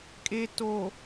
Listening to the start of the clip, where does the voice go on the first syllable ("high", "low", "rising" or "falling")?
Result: low